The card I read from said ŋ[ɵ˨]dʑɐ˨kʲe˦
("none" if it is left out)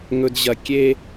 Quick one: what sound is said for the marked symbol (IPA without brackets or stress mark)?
ɵ˨